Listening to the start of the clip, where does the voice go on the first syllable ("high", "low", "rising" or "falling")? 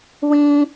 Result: high